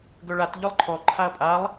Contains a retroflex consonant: yes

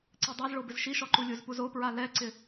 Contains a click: yes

